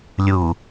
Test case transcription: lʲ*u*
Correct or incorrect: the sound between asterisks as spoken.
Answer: correct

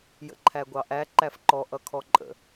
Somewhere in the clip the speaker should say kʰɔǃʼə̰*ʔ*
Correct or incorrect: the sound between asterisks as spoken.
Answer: incorrect: none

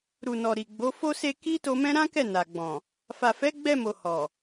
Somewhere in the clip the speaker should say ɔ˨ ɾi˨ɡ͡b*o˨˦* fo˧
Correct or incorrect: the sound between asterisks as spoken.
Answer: correct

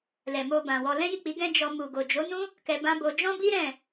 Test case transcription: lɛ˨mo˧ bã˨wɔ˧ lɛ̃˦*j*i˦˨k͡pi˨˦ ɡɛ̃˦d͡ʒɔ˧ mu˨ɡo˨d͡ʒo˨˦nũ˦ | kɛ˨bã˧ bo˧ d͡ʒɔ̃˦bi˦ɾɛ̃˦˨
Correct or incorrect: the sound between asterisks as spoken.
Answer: correct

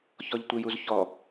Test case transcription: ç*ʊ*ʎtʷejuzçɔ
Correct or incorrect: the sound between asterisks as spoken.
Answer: incorrect: ɔ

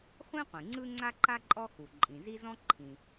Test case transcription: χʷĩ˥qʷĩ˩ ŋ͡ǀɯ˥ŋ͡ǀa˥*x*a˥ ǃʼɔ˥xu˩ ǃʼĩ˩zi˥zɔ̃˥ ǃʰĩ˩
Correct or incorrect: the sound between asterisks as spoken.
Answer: incorrect: ǃ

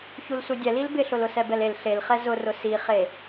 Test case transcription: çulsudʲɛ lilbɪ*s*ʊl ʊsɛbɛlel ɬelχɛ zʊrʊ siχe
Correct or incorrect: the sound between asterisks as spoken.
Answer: incorrect: ɬ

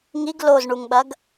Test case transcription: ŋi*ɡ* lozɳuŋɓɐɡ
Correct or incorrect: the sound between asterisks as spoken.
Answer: correct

